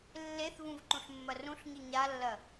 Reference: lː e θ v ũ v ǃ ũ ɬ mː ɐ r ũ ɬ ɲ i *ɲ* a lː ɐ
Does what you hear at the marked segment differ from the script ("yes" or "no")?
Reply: no